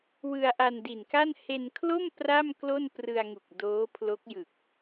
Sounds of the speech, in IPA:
w ɯ˧ a̯ ʔ a˧ n d i˨˩ n k a˥˩ n h e˧ n kʰ l o˥˩ m p r a˥˩ m k l o˥˩ n p r ɯ˧ a̯ ŋ u˨˩ k̚ d oː˦˥ pʰ l o˦˥ k̚ j ɯ˨˩ k̚

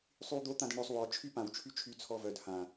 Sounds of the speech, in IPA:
sˤ y w d̪ o t̪ ã d ə ɳ ɾ ø sˤ w ɔ t͡ʃʰ y p ã w t͡ʃʰ y t͡ʃʰ y t͡sʰ ɔ v œ d h ã

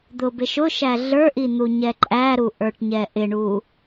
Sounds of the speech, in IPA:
d̪ ʊ b ɪ ʃ ʊ ʃ æ ɮ ə˞ ʔ i n̪ u ɲ ɛ ǃʼ æ ɾ u ʔ ə˞ ʈ ɲ ɛ ʔ ɪ ɳ u

